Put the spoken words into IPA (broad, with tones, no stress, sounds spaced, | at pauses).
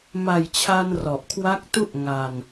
m a˨˩ j t͡ɕʰ a˧ n r ɔ˨˩ ʔ kʰ w a˦˥ k̚ t u˥˩ ʔ ŋ a˧ n